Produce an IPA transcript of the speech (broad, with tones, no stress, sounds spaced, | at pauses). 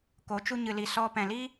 k o˨˦ t͡ʃ u˧ ɲ ɨ˨ l i˨ s ɔ˨ p ɛ̃˨ l i˦